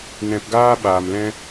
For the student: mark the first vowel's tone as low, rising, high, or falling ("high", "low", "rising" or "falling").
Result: low